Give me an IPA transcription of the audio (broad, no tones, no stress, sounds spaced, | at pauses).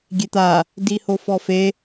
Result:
ɡʲ e t̪ a | d i h o f ɔ f e